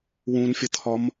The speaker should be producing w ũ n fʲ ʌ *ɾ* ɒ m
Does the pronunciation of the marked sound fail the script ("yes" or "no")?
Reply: yes